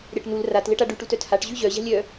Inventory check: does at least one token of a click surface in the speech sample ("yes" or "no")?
no